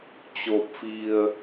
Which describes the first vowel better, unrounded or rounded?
rounded